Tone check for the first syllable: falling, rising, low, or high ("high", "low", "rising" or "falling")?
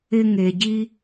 high